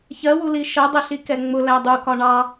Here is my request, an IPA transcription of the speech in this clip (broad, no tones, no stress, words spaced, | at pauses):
çɜwuli ʃɜdˤɛɬikɛ ŋ͡mʊlæ dˤukɒ ɳɑ